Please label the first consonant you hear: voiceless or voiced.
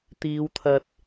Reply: voiceless